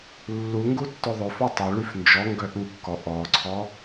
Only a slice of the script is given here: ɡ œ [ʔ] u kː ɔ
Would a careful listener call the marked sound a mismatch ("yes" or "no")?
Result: no